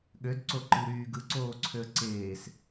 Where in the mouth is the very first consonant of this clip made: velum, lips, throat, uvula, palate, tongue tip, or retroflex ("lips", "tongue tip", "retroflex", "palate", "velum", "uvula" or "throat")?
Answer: velum